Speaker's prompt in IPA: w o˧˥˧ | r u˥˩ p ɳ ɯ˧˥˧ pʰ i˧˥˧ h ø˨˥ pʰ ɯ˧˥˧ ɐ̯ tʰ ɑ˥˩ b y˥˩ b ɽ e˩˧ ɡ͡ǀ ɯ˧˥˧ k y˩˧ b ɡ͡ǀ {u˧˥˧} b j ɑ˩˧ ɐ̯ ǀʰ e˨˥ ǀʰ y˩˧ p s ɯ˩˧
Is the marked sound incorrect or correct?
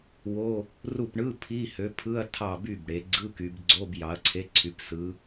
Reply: incorrect